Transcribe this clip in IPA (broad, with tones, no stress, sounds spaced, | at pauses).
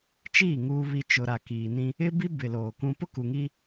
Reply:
t͡ʃ iː˦˨ ŋ uː˨ β i˨ t͡ʃ ʊ˨ ɾ a˨ k iː˨ n ĩ˦ | ɪ˦ b i˦ b ɪ˨ l oː˨ k ũ˦ p ʊ˦ k u˨ ŋ i˦